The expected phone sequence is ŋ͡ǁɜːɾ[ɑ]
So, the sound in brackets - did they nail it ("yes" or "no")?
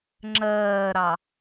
yes